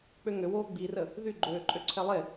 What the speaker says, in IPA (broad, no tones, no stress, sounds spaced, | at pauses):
k͡p ø ŋ ø w oː ɡ͡b i r ə | ð y ɡ͡ǃ øː ǃʼ ø ǀʰ ɛ lˠ e